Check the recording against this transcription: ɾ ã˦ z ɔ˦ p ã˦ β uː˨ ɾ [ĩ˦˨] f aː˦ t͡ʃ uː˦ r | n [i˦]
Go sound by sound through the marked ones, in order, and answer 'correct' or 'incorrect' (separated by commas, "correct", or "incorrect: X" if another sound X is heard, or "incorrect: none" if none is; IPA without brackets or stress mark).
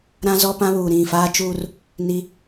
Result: correct, correct